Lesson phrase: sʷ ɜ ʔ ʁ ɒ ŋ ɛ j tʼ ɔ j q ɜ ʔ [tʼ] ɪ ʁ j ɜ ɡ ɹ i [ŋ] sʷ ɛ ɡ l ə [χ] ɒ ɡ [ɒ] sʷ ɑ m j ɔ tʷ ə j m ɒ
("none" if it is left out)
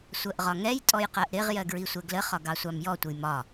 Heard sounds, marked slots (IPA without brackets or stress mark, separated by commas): ɾ, none, χ, ɑ